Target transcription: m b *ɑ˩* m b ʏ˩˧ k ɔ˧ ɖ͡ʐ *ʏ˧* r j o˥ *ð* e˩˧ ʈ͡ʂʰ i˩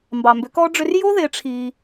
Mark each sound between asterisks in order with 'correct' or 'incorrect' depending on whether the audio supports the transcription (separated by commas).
correct, correct, correct